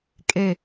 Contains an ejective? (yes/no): yes